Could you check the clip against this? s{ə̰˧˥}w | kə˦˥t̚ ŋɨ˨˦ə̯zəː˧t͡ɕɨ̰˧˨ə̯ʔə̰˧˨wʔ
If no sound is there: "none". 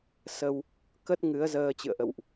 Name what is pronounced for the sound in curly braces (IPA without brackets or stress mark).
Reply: ə˧